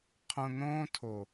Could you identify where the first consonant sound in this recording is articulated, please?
uvular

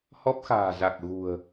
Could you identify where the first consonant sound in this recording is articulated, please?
glottal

